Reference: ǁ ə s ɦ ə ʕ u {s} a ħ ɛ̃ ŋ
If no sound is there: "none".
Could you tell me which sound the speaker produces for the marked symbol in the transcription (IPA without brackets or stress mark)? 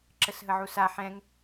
s